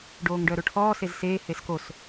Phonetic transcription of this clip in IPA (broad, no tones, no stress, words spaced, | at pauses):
ɖoːŋɖœɾoʈʰɔː sezseː heskos